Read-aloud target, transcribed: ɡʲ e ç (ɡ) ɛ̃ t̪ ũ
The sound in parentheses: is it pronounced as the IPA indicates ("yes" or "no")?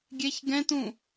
yes